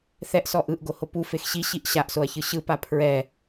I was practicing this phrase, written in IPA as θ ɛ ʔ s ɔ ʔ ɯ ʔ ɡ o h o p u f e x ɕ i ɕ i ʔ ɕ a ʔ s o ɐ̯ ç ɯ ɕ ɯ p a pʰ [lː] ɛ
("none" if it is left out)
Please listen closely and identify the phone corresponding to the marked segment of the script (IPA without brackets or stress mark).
ɹ